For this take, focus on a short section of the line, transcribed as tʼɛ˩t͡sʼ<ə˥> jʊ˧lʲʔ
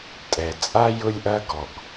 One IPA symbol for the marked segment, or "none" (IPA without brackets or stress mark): a˥